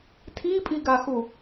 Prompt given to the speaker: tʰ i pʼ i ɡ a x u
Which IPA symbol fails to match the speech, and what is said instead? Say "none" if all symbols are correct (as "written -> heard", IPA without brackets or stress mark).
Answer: none